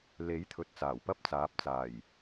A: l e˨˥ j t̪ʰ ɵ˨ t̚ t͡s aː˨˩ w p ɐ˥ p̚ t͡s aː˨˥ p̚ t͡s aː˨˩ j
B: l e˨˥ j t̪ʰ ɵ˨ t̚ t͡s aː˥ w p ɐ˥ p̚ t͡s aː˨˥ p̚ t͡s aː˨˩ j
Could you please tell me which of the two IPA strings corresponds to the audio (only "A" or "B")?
A